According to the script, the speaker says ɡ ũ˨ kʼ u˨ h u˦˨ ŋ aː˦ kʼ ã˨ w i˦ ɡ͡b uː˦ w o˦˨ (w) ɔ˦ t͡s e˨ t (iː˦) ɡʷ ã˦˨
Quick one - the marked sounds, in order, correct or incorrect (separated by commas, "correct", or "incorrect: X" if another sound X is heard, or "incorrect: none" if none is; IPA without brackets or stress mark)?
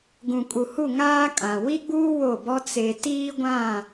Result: incorrect: b, correct